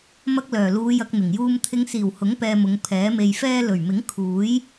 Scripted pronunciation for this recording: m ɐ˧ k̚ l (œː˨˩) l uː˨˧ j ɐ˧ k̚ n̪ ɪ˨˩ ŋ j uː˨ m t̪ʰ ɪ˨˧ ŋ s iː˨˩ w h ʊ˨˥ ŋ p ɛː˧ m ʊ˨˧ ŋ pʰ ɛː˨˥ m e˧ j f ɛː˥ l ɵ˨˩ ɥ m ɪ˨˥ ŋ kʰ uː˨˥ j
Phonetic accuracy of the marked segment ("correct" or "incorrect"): correct